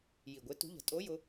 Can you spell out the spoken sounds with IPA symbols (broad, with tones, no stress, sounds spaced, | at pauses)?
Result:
j i˨˩ ɡʷ e˧˥ t ṳ˧˥ ʎ ə̤˨˩˦ tʼ o˧˥ j ʊ˧˥